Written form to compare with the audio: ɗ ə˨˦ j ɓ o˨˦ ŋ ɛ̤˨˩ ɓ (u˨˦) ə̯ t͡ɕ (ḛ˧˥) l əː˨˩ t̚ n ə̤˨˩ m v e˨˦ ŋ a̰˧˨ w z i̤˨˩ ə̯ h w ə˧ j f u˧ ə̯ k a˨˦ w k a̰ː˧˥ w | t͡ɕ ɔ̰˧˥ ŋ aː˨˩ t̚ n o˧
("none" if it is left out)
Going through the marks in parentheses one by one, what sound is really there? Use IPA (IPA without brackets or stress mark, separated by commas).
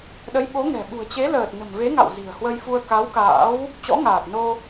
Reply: ṳ˨˩, e˨˦